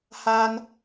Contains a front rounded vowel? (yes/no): no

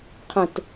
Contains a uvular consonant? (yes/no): yes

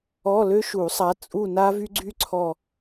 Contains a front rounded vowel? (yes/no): yes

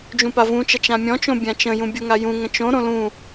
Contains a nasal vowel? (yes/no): yes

